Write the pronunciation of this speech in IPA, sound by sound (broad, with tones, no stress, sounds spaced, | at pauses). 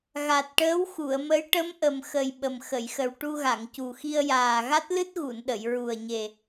ɣ a˨˩ t̚ ʈ əː˧˥ w x u˨˩˨ ə̯ m ə˧˥ j ʈ ə˧˥ m ʔ ə˨˩ m x ə˨˩ j ɓ ə˨˩ m x ə˨˩˨ j x ə˨˩ w ʈ u˧ ɣ a˨˩˨ ŋ c u˨˩ x i˧ ə̯ j aː˨˩ ɣ a˦˥ t̚ l ɨ˦˥ t̚ ɣ u˨˩˨ n ɗ ə˨˩˨ j ɹ u˨˩ ə̯ ɲ e˨˩